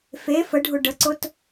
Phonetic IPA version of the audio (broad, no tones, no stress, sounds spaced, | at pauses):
f e f ə ɖʱ ʊ ɖ ə ǀ ʊ t